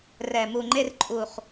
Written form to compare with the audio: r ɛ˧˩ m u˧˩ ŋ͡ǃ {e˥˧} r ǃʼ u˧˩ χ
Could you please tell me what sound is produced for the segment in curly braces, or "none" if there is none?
e˥˧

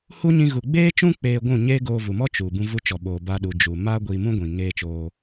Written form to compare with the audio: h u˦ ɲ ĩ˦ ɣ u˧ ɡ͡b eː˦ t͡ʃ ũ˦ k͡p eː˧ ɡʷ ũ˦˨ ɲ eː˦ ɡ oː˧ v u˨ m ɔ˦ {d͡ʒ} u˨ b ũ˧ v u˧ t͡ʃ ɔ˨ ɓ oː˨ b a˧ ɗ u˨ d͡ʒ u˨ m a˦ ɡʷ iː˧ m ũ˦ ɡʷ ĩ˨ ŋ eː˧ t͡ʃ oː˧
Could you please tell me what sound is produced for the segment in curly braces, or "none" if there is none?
t͡ʃ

